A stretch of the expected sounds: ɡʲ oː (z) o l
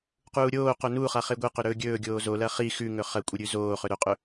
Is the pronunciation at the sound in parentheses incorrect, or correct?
correct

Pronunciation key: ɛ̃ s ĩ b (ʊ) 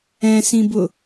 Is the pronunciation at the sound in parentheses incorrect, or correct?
correct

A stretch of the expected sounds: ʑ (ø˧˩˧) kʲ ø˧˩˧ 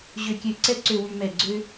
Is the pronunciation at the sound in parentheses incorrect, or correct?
correct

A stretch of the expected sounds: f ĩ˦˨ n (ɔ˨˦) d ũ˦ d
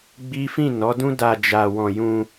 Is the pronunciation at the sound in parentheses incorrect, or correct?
correct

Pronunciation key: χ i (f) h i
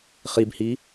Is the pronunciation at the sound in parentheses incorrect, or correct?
incorrect: b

